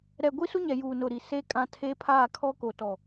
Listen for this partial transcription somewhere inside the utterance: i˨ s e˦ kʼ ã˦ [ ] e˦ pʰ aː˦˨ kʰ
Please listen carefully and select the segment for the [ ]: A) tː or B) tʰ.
B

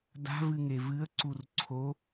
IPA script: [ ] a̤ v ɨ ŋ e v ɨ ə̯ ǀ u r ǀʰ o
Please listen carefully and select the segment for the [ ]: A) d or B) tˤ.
A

